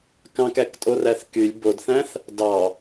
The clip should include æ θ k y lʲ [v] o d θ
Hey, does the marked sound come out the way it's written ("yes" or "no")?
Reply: no